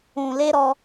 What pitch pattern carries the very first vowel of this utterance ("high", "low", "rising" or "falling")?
low